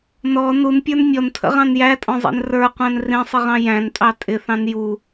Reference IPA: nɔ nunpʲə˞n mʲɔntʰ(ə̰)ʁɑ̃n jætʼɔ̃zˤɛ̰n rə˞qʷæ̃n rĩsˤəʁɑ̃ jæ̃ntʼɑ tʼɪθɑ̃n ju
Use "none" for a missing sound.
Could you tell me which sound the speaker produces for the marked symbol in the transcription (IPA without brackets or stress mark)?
ə̰